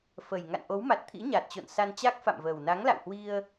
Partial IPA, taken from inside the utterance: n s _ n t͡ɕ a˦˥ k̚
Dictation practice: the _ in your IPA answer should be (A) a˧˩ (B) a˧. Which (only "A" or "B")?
B